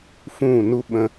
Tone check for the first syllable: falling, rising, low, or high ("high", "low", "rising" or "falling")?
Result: falling